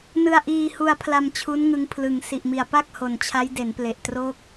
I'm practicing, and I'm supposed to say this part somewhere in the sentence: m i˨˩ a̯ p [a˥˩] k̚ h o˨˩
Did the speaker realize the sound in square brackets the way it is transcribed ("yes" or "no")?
yes